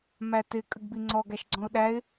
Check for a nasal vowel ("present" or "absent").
present